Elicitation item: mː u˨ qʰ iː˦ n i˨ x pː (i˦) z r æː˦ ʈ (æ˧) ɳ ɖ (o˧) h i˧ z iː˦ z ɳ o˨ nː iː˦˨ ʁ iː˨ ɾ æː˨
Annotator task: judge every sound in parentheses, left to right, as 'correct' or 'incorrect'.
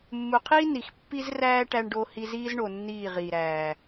correct, correct, correct

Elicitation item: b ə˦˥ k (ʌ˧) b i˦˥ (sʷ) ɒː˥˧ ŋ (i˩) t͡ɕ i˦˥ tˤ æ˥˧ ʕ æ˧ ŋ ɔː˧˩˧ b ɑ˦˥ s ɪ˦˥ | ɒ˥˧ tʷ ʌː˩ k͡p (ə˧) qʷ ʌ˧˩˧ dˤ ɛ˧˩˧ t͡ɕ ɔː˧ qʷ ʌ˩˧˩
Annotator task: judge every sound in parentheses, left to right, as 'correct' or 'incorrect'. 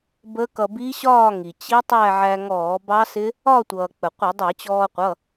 correct, incorrect: ɕ, correct, incorrect: ə˩

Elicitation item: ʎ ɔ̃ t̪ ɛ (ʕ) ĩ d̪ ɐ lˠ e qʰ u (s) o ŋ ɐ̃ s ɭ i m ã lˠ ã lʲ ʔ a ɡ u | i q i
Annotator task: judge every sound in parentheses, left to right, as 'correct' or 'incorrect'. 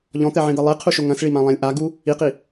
correct, incorrect: ʃ

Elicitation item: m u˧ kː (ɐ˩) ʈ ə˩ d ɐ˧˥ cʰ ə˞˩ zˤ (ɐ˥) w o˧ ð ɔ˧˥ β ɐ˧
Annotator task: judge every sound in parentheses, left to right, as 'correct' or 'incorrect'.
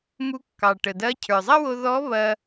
incorrect: ɑ˩, correct

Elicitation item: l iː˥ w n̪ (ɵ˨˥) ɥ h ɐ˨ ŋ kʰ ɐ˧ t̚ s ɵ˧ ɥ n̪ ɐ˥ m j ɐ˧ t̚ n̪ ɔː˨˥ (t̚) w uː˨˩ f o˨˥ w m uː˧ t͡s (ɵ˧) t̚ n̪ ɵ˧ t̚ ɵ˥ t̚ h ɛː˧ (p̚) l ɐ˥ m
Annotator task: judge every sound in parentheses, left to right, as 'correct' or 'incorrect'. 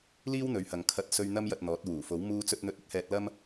correct, correct, correct, incorrect: t̚

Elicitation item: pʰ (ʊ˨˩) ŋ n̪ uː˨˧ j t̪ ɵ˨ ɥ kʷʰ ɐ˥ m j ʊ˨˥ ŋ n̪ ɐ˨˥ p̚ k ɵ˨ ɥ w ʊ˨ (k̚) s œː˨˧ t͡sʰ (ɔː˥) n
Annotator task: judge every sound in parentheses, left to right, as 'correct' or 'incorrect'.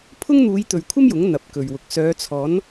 incorrect: ʊ˥, correct, incorrect: ɔː˨˥

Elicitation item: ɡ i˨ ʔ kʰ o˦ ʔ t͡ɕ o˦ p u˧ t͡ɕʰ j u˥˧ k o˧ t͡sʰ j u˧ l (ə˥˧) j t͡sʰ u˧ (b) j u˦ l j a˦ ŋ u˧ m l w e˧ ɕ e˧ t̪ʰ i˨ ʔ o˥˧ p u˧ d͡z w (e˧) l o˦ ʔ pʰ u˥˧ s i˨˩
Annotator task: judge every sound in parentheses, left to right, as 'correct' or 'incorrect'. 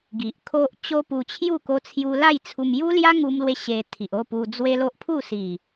incorrect: a˥˧, incorrect: m, incorrect: e˦

